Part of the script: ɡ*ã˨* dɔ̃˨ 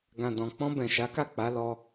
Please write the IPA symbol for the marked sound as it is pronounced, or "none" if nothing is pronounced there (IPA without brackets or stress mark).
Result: ã˨